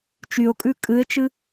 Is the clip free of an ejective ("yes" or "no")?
no